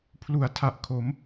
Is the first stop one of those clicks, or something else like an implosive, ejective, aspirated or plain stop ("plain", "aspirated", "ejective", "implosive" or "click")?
aspirated